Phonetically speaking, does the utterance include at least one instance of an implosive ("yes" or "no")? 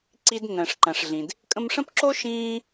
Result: no